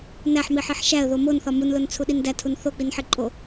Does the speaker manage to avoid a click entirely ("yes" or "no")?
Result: no